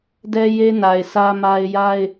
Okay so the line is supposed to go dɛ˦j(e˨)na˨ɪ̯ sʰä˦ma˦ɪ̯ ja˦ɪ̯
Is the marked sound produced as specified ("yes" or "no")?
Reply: no